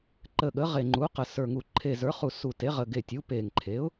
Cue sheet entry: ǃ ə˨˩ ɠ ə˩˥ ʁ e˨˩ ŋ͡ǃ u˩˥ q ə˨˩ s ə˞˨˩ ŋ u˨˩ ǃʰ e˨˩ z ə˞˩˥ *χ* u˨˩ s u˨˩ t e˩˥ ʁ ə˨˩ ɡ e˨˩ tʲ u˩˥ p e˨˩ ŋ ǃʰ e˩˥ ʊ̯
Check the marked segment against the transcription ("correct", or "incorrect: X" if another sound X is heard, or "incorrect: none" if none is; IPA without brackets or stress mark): correct